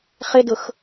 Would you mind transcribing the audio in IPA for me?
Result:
χ ɪ d ʊ x

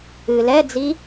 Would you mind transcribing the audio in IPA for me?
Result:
ɨ l ɛ d͡z i

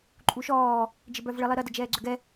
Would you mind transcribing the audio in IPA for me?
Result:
ǃʼ u ʃ ɔː | d͡ʒ ɪ b œ v ɭ ɪ lˠ i ɾ ɐ d ə d͡ʒ ɛː ɡ͡ǀ ʏ ɡ ɛ

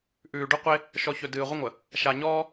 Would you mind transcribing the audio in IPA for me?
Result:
ʔ ʉː˨ ɖ ɵ˦ qʷ e˦ | ʃ ɔ˨ ç ɵ˨ d ɨː˨ ʁʷ ə˦ ŋʷ ə˨ | ʃ a˨ ɲ ɔː˦

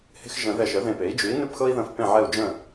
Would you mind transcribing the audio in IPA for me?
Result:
h e̤˦ x ʒ ə̃˨˩˦ ð ɛ˧˩ ʃ ə˩˥ ð ẽ˧˩ p e˩˥ i̯ d͡ʒ ʉ˩˥ i̯ n ʉ˥˩ p x ɤ˦ i̯ ð ə̃˥˩ f p ẽ˥˩ ʕ ɛ˥˩ u̯ d͡ʒ ə̃˥˩

